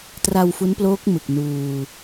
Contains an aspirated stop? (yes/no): no